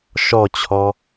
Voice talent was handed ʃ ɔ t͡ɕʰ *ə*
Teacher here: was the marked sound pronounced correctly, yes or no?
no